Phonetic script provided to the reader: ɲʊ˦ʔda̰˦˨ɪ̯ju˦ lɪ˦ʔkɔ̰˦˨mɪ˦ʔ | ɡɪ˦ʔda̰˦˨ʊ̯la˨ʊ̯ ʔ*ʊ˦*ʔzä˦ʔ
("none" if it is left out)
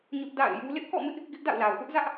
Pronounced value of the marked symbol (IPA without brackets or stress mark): ʊ˦